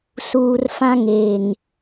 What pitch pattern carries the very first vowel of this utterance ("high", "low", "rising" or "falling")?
low